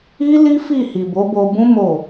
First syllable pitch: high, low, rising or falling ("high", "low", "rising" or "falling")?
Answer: high